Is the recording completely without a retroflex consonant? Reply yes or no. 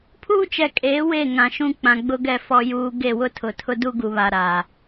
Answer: yes